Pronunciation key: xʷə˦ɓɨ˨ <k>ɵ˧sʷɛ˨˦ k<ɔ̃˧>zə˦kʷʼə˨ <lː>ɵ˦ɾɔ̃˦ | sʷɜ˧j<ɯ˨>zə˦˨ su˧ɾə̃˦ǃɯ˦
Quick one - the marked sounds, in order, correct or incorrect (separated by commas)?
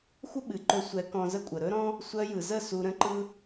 incorrect, correct, incorrect, correct